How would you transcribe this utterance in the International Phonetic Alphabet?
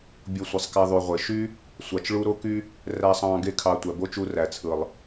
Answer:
bʲo˧sʷi˨sˤkæ˧ ðˤy˨ ʁʷe˨ ʃy˦ | sʷɑ˧t͡ʃɭu˦ ɾo˦ky˦ | ræ˦sˤɑ̃ː˦ ɡe˦kʰɑ˧ tʷæ˨bo˦t͡ʃu˧ ræ˨t͡sʰɯ˨lˠ

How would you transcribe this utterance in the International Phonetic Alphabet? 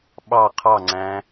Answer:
ɓɑ qʰɑŋ͡ǀæ̃

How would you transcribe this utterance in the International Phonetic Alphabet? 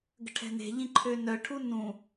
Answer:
ɡə̤ʈʰɛ̤ne̤ʎĩ ǃʰønœʈʰu nũ

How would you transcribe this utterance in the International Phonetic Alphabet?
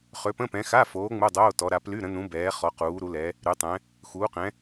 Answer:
χø˨˦pə̃˧˥˧pɛ̃˨˦ xa˧˥˧foː˨˦ ŋ͡mu˧˥˧ dˤoː˧˥˧tɔ˨˦ɾa˨˦ ply˧˥˧ɾə̃˨˦nũ˨˦ bɛː˨˦χɔ˨˦ quː˨˦ɾu˨˦lɛ˨˦ | ɾy˨˦tˤɛ̃˨˦ | xuː˨˦qɛ̃˨˦

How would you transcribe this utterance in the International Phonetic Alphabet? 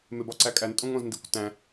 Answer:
mebɒǀækʼæn tʼõŋõzndikʷtæ̃

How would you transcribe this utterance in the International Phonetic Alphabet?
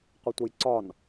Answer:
qʷɪtʷʌjǀɒn

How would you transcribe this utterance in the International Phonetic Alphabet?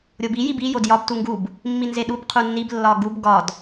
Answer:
ɾʲobi jibi jodjɒb tuŋɡub | mːinzeɗub qʰunːib lːɒɡub ɡɒd

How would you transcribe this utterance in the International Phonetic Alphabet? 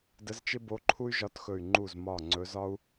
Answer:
də˧˥zt͡ʃɪ˥bo˧˥ǃʰu˥y̯ ʒɒ˧˥txɵ˧˩y̯ ŋ͡ǃu˧˩zmɒ˧˩ ŋ͡ǀɵ˧˥zɒ˥u̯

